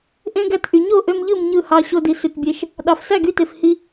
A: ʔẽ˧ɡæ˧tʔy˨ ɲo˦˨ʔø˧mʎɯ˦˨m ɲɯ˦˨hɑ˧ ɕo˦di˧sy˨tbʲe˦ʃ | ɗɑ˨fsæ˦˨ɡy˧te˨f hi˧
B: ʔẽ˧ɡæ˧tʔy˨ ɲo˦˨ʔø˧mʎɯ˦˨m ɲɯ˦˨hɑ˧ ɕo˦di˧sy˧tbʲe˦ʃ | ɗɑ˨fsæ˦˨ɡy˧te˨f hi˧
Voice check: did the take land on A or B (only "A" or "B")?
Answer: B